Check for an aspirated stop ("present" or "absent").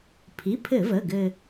present